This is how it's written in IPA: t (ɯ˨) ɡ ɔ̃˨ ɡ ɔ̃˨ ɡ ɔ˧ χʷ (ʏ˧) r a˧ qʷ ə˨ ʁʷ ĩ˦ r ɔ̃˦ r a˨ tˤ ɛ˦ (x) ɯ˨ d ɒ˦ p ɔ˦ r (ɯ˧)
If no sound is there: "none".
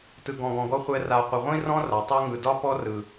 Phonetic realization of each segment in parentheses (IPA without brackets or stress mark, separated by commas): ɯ˨, ɛ˧, ŋ, ɯ˨